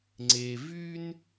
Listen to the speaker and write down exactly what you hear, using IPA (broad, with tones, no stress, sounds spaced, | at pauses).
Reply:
ŋ͡ǀ e˧ v y˥ n